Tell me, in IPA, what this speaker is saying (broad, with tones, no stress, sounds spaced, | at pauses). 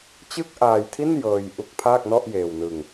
t͡ɕ ɯ˥˩ k̚ ʔ aː˧ j tʰ i˥˩ n j ɤː˧ j ʔ u˦˥ k̚ pʰ aː˥˩ k̚ n ɔ˥˩ ʔ j eː˧ w n ɯ˧ ŋ